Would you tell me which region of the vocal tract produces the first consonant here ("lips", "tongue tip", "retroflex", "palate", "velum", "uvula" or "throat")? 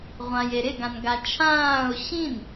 uvula